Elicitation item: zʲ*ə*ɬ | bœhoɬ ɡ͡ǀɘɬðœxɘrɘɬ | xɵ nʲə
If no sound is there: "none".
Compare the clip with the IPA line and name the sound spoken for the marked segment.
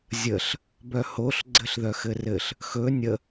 ə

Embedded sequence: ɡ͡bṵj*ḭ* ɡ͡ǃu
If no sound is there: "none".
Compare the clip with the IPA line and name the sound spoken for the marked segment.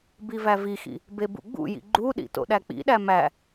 ḭ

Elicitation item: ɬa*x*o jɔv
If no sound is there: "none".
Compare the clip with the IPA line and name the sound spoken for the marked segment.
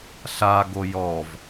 ɡ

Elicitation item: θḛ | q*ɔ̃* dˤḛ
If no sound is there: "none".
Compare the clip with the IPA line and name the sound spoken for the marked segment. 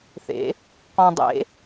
ɔ̃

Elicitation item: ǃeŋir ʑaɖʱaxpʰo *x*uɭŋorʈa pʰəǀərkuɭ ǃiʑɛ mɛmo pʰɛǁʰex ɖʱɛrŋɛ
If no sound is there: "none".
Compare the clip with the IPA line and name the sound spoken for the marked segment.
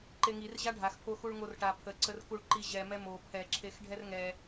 x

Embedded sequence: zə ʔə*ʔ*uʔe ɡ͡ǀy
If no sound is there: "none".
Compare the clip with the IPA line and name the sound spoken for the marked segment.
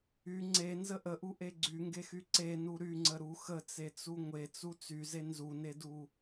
ʔ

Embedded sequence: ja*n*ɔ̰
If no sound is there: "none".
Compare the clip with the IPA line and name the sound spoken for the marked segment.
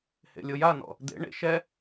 n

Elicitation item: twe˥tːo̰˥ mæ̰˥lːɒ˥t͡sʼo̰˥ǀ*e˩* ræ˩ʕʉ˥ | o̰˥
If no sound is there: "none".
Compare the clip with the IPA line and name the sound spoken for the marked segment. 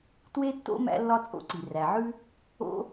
i˩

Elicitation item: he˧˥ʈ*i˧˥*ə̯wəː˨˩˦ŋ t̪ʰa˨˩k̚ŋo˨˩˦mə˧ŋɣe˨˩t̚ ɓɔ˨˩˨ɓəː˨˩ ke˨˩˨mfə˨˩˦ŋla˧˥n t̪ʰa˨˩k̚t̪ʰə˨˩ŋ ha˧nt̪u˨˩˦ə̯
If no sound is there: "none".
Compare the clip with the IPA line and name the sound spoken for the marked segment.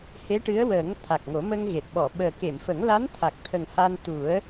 ɨ˧˥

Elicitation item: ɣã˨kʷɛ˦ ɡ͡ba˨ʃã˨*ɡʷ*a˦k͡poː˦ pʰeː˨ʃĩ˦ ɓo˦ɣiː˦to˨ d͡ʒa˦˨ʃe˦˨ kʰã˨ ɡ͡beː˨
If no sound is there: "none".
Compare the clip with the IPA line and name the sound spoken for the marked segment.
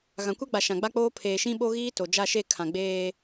ɡ͡b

